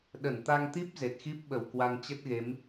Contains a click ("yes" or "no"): no